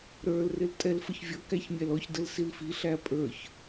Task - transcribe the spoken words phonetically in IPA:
ɾə˞l rɪltʼɛlfəçvʲʌ kæçmʲælɔç dəlsilfi ɬæpʼə˞ç

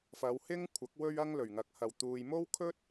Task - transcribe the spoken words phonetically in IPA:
fɐ˨˧w hɪ˥ŋkʷʰɐ˨˥k̚ wɵ˥ɥɐ˥ŋlɵ˨˩ɥŋɐ˨k̚ hɐ˨˩wt̪uː˨j mo˥wkʰɵ˥t̚

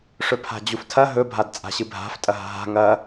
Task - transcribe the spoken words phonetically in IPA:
ʂɵpʰa̤d͡ʑuftʰɐ ɦɵ bʱadt͡sʼa̤ɕɨbʱa̤f tʼɐɦa̤ɦa̤ ŋɐ

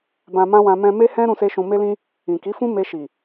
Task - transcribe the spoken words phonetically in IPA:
bã˧mã˦wã˧ mɛ̃˧me˦hɛ̃˦ ɾũ˦se˦ʃũ˧ me˧lĩ˧ | ĩ˨ki˨˦fũ˦ me˧ʃi˨

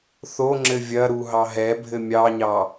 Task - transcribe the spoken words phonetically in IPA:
θoŋ͡ǁɘ vʲɐɾu ɦɑɦɛbʱɘ mʲɑɲɑ

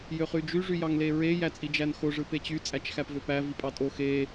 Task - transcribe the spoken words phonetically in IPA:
jøχyd͡ʒy ʐyjɑŋleɹe jæt͡sʼid͡ʒænxo ʐɯpet͡ɕy t͡sʼæt͡ʃxæpvøpæ vipʼɑtʼo xe

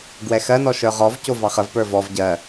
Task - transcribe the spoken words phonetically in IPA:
ɡwɛxɜnɔ ʃə˞ʁɔvco vɑχəvpə˞ vɔv ɟɜ

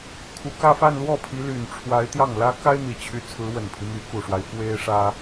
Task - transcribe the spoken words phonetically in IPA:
kʰu˨˩kä˥˧fa˥˧n lwɔ˥˩ pʰi˧˥ly˨˩nʈ͡ʂʰwa˧˥ɪ̯ t̪jɑ˥˩ŋlä˥ ka˥ɪ̯n̪i˨˩t͡ɕʰy˧˥ t͡sʰɹ̩˧˥wə˨˩npʰi˦ my˧˥ku˨˩ʂwa˦ɪ̯ fwe˥ɪ̯ʂä˥

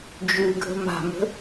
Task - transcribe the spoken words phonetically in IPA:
d͡ʒʉ ɡʱə̤ma̤mə̤

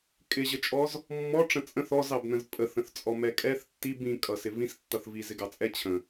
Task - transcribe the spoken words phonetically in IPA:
kʼɪʑət͡ʃʼɔz | mːɔʈ͡ʂə̃ t͡sʼə̃θ ɔzɑbnə̃z pʼəθə̃θt͡sʼɔ mɛkʼɛθ tːib ĩkʼʌ sɪvĩs tːʌθvi zɪɡɑt͡sʼɛ t͡ɕʰə̃

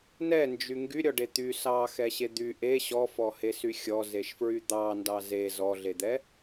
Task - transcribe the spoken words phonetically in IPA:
nɛnd͡ʒy ŋɡyɾʲɔɖe t̪y sɑxɛɕe d̪y ʔe ɕɔfɔhesy xʲɔzeʃfɹy d̪ɑ ndɑze zɔɮed̪ɛ

